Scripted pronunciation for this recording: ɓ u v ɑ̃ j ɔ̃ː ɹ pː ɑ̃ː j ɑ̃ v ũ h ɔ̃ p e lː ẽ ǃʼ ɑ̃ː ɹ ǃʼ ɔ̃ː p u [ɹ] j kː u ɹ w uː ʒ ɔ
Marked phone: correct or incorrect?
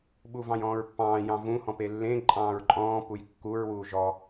incorrect